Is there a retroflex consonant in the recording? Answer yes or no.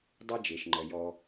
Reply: no